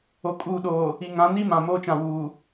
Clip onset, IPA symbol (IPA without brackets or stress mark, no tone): o